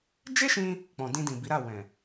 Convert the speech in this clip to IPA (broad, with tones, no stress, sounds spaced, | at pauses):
d͡ʒ e˦ ʃ ĩ˧ | k͡p ɔ̃˨ d ĩ˧ d ĩ˨ b i˨˦ ɾ a˦˨ w ɛ̃˨